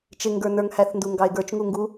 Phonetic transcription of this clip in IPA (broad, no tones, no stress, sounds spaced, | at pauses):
t͡ʃ ɪ ŋ ɡ ə˞ n ə˞ ŋ h æ θ n d u ŋ ɡ ɑ e̯ ɡ ə˞ t͡ʃ ŋ u ŋ ɡ u